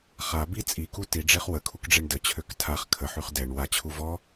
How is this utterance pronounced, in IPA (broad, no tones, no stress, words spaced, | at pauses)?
χa bi t͡sʼiku tiɖ͡ʐeχ wəkʰukɖ͡ʐeɳ dət͡ɕʰøk tʰaχ kʰəħyχ dɛɳ wat͡ɕʰu vɔ